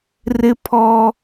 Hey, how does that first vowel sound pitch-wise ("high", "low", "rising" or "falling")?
high